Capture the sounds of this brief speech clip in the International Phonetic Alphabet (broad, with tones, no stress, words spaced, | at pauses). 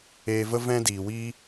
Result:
eː˧və˦ vɛ̃˦diː˨wiː˦